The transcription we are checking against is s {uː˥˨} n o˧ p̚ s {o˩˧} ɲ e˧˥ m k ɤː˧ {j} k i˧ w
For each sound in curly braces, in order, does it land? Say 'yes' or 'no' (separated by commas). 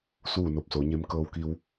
yes, yes, no